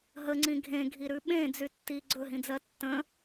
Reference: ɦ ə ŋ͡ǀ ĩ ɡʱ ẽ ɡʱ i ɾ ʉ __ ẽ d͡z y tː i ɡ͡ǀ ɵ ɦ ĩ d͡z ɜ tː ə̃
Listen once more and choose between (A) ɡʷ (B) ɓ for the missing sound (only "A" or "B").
B